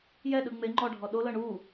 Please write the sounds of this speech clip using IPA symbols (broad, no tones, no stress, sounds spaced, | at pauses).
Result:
j ɛ ɗ ɯ ŋ͡m e ŋ͡ǃ ɔ ɖʱ ɔ ɗ o l ɤ ɳ u